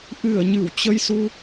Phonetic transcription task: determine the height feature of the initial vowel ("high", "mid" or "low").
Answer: high